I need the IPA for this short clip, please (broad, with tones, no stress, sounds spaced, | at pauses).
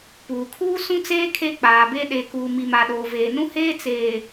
p uː˨ kʰ uː˦ s ũ˦ t͡s eː˦ kʰ e˦ k͡p aː˨ b e˦ ɗ e˨ k uː˨ m i˨ m a˨ ɗ oː˨ v eː˨ n ũ˦ h eː˦ t͡s eː˨